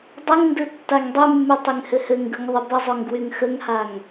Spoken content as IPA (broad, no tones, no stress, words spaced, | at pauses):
dˤɘŋndɯ tːaŋdˤymːy tˤyŋhɘhɘŋɡɯŋ ðˤəbəzˤoŋ ɡwyŋxəŋhaŋ